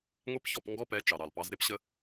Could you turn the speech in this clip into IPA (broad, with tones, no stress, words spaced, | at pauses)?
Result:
ŋʷe˦pçɔ˦˨p ŋɡɔ˦pɛ˨˦ t͡ʃɑ˨ɾɑ˨lpɑ˨˦z ɾe˦pɕə˧